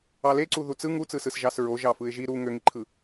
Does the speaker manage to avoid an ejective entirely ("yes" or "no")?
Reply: yes